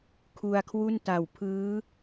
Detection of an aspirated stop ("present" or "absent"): present